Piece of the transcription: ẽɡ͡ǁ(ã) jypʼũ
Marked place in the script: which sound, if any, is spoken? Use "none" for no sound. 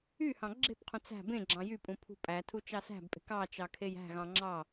ɑ̃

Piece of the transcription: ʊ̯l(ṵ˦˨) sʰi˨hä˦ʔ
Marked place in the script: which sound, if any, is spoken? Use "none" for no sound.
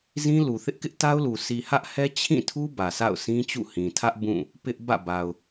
u˨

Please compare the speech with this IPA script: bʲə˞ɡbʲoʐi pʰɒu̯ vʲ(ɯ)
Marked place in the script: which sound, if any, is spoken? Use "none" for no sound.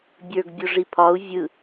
ɯ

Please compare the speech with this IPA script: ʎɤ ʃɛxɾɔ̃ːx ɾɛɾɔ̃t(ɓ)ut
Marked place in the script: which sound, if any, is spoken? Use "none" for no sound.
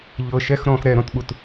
ɓ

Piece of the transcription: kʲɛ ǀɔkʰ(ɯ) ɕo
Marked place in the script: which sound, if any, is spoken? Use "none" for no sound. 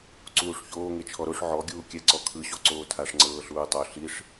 ɯ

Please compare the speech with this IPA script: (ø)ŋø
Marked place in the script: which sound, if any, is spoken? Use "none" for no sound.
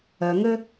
œ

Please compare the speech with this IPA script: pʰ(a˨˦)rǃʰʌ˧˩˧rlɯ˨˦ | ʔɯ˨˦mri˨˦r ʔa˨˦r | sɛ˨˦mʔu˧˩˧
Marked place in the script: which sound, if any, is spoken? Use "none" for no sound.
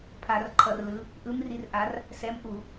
a˧˩˧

